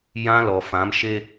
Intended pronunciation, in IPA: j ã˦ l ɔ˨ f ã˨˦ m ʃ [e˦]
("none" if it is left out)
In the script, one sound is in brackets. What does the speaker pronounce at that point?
e˦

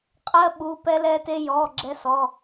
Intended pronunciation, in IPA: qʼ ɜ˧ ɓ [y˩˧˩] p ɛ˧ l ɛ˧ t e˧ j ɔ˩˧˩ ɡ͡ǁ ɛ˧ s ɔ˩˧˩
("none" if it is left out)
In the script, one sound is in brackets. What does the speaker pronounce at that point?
u˩˧˩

